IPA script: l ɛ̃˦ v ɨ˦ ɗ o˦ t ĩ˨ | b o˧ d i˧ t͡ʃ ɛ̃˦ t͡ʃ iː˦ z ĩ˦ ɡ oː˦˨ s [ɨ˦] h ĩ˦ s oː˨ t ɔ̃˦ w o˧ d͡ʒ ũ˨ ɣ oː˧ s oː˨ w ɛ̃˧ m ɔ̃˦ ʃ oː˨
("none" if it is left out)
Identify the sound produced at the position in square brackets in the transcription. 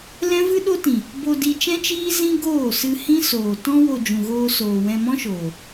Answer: ɨ˧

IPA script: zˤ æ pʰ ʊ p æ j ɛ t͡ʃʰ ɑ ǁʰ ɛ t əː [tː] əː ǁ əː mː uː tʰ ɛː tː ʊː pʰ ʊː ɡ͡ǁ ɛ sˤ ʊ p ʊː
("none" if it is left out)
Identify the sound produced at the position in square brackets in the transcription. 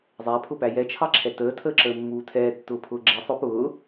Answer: tʰ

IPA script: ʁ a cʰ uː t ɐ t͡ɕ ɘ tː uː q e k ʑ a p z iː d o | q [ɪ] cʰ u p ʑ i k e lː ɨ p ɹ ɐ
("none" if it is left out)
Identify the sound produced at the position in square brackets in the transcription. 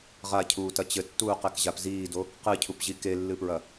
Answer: ɨ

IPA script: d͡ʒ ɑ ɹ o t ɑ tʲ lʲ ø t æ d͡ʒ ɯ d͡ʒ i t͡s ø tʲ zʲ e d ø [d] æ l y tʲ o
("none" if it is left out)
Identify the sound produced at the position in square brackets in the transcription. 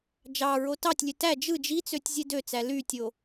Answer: t͡s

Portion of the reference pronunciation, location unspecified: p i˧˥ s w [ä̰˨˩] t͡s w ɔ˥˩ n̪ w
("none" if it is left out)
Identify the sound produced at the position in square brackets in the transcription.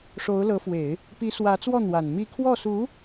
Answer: ä˧˥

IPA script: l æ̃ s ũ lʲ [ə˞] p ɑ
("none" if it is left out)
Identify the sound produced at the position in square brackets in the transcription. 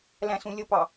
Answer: ə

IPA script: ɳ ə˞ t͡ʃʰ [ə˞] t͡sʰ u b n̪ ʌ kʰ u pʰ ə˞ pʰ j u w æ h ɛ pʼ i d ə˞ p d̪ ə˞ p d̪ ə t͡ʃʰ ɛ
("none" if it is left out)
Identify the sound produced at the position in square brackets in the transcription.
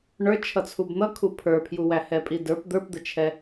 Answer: ʌ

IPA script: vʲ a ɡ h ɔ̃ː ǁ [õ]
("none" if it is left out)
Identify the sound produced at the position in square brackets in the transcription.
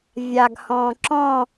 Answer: ɔ̃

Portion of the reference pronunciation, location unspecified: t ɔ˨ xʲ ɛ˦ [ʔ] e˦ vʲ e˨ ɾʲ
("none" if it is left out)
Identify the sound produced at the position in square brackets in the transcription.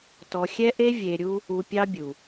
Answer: ʔ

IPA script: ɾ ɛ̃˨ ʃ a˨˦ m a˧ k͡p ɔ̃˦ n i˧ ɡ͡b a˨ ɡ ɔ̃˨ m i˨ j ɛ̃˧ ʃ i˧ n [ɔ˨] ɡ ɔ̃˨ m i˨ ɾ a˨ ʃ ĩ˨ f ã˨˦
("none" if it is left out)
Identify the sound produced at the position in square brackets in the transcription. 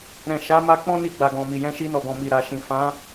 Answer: ɔ˨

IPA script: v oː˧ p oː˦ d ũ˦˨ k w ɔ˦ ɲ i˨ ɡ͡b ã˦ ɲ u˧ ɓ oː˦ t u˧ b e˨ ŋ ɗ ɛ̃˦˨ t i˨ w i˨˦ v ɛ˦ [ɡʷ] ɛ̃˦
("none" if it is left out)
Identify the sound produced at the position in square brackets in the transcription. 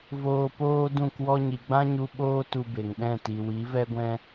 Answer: ɡʷ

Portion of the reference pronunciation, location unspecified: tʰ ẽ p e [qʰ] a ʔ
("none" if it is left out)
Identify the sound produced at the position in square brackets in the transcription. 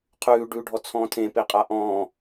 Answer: qʼ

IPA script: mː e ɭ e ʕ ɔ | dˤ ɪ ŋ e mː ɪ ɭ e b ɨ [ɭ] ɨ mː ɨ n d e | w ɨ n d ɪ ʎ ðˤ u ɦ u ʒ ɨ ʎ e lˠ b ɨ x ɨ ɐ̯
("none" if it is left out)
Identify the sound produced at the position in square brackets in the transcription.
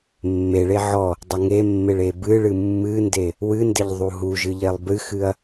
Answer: ɭ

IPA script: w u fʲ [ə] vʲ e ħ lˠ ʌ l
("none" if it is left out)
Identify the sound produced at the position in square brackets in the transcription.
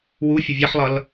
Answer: ə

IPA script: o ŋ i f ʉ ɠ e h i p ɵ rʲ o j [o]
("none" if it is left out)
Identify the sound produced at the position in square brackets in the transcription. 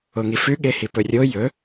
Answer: ɵ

